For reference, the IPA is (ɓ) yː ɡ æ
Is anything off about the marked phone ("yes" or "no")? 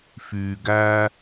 yes